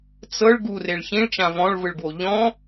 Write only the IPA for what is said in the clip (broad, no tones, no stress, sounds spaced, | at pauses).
t͡s ɤ ɭ ɡ u r e ɭ ç ĩ ɭ t͡ʃ ã v ɔ̃ ɭ v ɯ ɭ ɡ w o ʎ ɔ̃